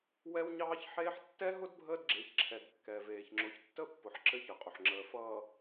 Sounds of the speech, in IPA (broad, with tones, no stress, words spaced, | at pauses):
wɛ˦wɲɑː˦çħeː˦ħ tːɛ˦ɦʊ˦d bʱəː˦dɡ͡ǁe˨˦çǁʰɛ˨d kːɛ˨veː˨çŋ͡ǁʊ˨˦ç tːə˦pːʊ˨ħ ǁɘ˦çə˨qʼʊ˨ħŋ͡ǁəː˨ fʌː˨